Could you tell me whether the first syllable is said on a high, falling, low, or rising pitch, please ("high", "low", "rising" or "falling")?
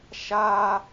high